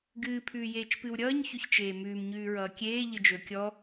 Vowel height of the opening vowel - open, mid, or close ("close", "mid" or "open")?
close